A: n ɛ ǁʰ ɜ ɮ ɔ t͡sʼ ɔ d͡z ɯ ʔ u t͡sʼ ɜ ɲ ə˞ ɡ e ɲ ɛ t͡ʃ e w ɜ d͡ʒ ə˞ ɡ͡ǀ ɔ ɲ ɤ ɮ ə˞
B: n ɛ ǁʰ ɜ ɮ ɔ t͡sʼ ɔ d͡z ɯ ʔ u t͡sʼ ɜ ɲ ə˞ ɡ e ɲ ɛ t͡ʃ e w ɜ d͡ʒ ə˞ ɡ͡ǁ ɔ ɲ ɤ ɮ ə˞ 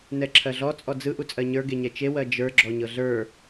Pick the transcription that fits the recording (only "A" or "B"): B